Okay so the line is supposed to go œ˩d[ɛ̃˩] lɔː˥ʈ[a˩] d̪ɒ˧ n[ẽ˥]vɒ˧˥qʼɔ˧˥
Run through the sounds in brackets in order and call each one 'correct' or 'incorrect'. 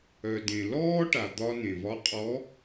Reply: incorrect: ẽ˩, correct, incorrect: ẽ˩

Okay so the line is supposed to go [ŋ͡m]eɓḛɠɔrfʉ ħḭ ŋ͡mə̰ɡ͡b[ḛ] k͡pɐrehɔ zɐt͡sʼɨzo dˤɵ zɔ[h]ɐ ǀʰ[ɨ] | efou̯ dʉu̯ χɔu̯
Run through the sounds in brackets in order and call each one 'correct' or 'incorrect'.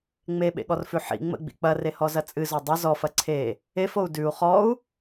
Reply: correct, incorrect: ḭ, incorrect: f, incorrect: e

